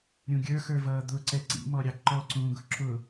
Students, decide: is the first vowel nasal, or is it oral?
nasal